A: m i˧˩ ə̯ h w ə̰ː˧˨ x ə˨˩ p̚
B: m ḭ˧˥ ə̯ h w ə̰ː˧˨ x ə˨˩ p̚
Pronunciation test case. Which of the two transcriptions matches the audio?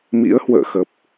B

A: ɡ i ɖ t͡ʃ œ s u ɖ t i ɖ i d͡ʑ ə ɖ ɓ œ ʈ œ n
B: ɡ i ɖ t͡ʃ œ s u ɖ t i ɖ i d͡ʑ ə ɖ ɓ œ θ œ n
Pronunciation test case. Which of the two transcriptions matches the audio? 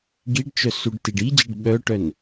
A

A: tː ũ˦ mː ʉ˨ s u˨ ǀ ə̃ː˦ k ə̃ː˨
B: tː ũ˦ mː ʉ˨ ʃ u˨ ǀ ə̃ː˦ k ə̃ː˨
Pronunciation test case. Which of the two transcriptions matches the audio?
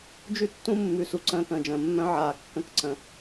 A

